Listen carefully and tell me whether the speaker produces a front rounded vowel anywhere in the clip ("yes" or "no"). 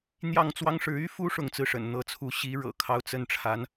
yes